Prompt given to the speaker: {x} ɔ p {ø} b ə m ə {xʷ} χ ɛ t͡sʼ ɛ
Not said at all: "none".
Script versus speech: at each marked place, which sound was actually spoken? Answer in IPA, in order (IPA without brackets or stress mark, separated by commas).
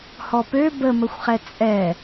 h, ø, xʷ